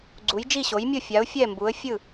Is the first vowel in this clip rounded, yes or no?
yes